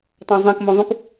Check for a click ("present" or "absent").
absent